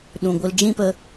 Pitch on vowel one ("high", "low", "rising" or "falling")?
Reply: low